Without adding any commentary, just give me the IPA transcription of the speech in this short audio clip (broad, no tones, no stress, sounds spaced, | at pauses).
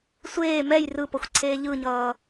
sʷ eː m ɛ j r ɯ p ʌ xʷ ǀʰ eː ʎ ɯ ɲ ʌː